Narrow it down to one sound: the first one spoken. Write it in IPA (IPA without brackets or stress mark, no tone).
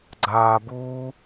ɡ͡ǀ